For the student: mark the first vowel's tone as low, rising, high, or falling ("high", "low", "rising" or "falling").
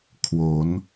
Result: rising